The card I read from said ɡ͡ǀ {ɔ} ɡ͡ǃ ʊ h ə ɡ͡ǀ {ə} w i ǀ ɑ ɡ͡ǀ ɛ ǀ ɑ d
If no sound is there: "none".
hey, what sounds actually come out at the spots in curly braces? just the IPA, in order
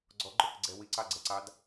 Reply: ɔ, ɛ

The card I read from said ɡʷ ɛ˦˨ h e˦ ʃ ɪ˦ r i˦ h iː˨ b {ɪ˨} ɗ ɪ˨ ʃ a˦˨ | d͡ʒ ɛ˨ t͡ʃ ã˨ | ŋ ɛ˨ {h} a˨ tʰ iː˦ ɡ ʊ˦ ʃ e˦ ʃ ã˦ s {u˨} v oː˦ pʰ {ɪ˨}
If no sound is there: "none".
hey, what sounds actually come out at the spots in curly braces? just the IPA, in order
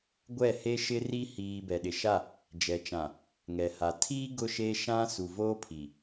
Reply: ɛ˨, h, u˨, i˨

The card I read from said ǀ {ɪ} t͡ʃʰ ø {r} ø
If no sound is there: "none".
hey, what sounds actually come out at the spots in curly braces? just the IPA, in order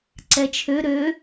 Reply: ɛ, ɾ

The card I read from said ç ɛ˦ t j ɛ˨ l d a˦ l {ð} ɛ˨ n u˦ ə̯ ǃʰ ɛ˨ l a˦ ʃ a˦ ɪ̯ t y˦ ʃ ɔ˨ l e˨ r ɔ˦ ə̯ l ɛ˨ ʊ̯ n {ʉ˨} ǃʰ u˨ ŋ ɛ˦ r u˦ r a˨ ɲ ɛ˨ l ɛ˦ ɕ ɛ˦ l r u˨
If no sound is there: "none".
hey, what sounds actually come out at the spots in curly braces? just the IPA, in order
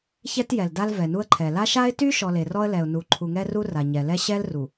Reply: v, u˨

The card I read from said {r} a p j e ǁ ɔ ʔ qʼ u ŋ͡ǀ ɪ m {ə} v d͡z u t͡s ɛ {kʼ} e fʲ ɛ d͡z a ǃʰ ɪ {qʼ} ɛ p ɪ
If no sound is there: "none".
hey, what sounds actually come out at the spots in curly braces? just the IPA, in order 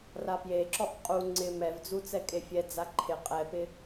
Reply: r, ɛ, kʼ, qʼ

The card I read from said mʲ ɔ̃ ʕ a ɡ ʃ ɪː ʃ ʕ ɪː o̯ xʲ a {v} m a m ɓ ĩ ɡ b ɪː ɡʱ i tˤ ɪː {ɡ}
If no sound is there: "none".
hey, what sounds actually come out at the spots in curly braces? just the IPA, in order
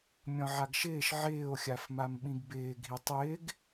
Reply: f, ɡ

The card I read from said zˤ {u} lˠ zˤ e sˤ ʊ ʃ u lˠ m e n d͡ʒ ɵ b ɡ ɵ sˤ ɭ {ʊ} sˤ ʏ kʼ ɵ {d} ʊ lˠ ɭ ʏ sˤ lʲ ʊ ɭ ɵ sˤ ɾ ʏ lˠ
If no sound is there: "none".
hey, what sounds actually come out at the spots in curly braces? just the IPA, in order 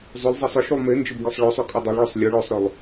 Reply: ʏ, ɵ, dˤ

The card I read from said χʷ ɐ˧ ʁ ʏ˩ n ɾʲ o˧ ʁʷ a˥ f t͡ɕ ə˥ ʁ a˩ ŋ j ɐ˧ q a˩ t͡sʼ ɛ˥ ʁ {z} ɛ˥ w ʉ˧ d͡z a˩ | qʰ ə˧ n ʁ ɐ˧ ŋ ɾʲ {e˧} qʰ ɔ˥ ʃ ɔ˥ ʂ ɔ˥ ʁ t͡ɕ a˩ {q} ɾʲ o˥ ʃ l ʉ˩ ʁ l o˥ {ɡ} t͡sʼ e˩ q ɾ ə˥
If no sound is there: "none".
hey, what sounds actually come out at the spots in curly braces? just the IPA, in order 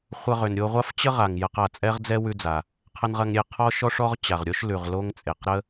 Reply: d͡z, e˧, ʁ, ŋ

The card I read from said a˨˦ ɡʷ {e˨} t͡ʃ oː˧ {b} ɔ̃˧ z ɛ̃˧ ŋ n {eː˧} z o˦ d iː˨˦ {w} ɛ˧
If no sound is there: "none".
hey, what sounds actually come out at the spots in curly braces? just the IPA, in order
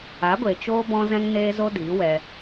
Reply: e˨, b, eː˧, w

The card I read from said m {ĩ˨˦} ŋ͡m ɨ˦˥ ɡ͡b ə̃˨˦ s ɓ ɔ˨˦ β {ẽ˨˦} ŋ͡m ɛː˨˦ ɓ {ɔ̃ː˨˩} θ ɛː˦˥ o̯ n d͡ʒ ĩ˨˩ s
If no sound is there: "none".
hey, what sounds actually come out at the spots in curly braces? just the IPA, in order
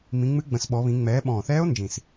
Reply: ĩ˨˦, ĩ˨˦, ɔ̃ː˨˩

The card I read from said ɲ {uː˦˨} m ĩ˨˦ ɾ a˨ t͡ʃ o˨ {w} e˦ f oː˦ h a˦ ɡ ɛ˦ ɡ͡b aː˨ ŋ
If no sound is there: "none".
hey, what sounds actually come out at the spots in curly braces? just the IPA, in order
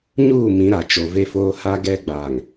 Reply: uː˦˨, v

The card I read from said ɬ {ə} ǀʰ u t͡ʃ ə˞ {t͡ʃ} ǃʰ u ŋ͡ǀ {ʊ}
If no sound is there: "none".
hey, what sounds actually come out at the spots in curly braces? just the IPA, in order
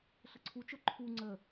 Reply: ə, none, ə

